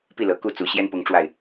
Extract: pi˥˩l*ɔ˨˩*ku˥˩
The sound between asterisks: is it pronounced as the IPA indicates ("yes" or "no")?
no